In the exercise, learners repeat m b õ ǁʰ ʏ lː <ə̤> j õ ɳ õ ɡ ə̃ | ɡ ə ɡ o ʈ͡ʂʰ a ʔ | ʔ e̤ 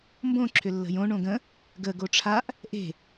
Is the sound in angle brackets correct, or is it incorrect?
correct